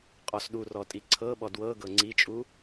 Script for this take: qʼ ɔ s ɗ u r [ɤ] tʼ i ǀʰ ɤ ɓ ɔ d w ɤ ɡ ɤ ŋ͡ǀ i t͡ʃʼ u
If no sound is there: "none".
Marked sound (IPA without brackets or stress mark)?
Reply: ɔ